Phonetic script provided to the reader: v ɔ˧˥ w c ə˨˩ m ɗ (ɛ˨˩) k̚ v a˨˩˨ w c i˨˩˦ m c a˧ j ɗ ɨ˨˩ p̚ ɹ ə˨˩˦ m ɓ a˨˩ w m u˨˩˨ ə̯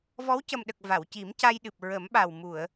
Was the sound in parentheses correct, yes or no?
no